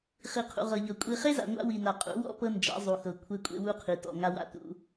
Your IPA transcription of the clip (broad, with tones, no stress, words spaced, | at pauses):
χi˨qʰṵ˨ʁɤ˨ʎɤ˨ kʷʼi˨χe˦za̰˨ ŋʷa̰˦wi˨ na˨ qʼṵ˨˦wɔ̰˦ pɤ˦nd͡ʒa̰˨˦ zˤu˨xɤ˨ kʷʰe˦kʷʼḛ˦wu˦qʰi˨ tɔ̰˨ŋa˦wa̰˦˨ tṵ˦